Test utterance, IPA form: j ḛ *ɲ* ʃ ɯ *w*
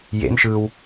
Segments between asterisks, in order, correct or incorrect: incorrect: n, correct

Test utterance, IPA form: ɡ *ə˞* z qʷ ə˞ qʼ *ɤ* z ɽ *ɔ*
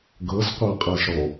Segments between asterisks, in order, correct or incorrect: incorrect: ɤ, correct, correct

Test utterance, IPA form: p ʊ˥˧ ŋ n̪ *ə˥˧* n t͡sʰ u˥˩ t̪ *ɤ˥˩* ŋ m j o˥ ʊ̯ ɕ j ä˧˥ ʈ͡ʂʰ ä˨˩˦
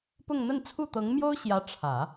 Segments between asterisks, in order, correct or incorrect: correct, incorrect: ɤ˧˥

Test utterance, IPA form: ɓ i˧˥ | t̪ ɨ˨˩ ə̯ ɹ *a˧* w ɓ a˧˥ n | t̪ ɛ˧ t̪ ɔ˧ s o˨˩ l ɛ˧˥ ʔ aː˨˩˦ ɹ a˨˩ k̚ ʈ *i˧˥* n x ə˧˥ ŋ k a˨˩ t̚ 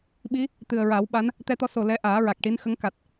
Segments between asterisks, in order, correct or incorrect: incorrect: a˨˩˦, correct

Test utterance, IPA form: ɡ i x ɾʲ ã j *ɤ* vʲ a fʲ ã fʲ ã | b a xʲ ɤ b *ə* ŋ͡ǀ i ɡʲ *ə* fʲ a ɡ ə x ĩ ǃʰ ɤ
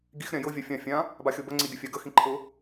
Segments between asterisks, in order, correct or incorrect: correct, correct, correct

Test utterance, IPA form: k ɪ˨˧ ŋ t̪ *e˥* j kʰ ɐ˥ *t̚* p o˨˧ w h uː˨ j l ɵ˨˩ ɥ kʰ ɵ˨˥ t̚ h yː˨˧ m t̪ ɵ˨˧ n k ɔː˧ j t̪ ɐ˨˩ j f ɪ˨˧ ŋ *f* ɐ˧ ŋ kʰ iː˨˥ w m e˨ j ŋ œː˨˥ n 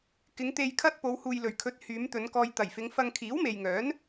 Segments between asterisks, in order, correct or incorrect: incorrect: e˧, correct, correct

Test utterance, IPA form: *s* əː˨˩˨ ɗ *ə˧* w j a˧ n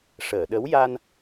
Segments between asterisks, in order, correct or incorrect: incorrect: ʂ, incorrect: ə˧˥

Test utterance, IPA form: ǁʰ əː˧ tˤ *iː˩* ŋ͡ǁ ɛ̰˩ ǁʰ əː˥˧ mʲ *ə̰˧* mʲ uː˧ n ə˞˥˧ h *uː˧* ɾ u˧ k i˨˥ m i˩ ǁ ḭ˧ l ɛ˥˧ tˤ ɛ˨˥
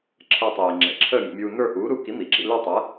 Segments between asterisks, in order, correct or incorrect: correct, correct, incorrect: uː˨˥

